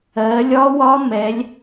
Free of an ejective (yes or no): yes